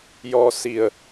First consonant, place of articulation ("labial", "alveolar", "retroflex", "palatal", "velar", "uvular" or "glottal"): palatal